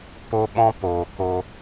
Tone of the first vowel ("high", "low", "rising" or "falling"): high